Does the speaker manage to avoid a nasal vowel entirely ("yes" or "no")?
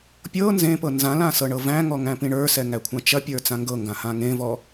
no